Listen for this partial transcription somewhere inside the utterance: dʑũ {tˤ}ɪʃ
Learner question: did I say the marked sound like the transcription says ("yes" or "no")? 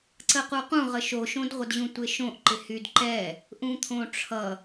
no